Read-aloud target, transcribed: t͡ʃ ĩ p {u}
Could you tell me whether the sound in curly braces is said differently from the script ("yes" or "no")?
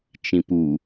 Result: no